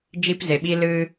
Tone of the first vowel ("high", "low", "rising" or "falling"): high